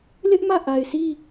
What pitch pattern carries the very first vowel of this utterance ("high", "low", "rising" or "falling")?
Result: high